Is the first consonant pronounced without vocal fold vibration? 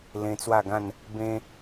no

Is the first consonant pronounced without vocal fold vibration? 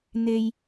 no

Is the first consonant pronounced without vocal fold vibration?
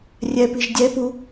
no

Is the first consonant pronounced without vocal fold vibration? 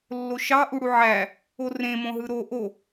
no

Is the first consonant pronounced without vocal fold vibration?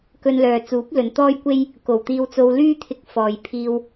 yes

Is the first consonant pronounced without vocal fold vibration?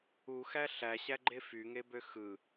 yes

